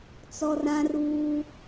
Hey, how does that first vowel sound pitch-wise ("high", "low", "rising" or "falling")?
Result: high